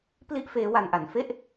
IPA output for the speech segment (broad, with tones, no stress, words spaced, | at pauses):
pli˥˩ʔ feː˦˥wa˧nʔa˩˦n fe˥˩ʔ